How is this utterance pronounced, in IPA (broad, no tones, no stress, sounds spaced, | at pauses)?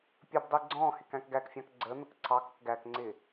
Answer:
pʲ ə b dˤ i ɡ͡ǀ ɔ̃ː h ɪ k æ̃ k ɡ æ k fʲ ɑ̃ k ɡ͡ǀ əː n̪ ə k ǀʰ ɑ k ʊ k ɡ æ k ŋ͡ǀ ɪː